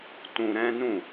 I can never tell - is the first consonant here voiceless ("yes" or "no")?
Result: yes